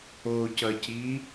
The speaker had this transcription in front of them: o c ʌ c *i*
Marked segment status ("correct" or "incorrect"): correct